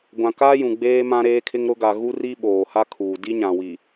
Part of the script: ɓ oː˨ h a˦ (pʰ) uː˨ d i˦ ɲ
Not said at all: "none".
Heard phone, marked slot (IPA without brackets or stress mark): kʰ